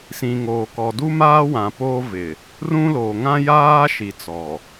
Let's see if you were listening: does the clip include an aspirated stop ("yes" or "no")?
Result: no